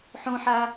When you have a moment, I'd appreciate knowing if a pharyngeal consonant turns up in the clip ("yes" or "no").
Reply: yes